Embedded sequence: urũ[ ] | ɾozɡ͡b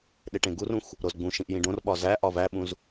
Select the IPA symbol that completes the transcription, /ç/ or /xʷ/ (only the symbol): xʷ